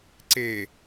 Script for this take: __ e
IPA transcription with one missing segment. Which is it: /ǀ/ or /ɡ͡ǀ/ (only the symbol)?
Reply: ǀ